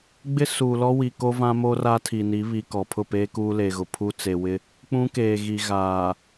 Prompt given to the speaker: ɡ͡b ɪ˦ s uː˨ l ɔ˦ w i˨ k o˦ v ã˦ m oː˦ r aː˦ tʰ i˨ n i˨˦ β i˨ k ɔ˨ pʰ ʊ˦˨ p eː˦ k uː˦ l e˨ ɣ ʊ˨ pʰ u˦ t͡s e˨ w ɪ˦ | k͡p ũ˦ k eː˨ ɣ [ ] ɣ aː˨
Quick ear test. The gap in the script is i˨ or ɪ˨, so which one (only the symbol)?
i˨